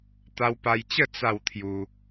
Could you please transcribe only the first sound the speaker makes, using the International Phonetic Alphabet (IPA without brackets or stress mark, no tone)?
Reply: t̪